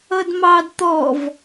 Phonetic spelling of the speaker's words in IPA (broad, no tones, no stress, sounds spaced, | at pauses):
ʌ d m ɑ d t̪ ɔ v